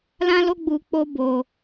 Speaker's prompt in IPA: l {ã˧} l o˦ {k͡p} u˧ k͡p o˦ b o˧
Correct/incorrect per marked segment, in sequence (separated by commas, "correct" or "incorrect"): incorrect, incorrect